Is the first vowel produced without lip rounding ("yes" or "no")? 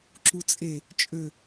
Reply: no